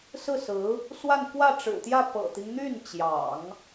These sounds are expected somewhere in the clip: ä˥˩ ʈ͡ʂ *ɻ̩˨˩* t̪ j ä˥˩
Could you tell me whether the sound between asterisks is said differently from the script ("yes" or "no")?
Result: no